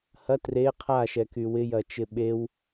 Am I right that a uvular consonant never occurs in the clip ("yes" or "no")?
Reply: no